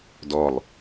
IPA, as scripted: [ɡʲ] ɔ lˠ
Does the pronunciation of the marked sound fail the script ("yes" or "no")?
yes